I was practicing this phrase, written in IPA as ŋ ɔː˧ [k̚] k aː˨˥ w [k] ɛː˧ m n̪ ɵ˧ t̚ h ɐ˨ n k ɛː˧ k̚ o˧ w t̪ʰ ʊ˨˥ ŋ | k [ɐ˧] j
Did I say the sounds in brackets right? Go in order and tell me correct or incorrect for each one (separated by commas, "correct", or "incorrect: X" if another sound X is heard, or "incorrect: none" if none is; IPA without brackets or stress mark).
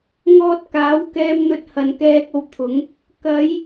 incorrect: t̚, correct, incorrect: ɐ˨˧